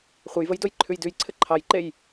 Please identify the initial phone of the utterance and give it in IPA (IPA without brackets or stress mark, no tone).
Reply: χʷ